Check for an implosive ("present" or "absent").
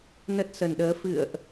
present